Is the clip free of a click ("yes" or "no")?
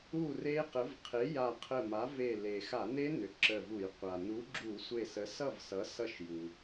no